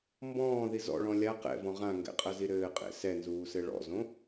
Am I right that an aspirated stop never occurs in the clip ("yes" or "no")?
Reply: yes